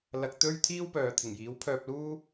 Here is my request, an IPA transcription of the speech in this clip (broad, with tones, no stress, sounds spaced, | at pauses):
l ɐ˧ k̚ t̪ ɵ˥ ɥ t̪ʰ iː˥ w p œː˨ t̪ʰ ɪ˨˩ ŋ j iː˨˥ w pʰ œː˧ p̚ l uː˥